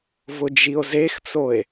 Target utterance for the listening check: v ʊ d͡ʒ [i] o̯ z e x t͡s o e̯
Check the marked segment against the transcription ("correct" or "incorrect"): correct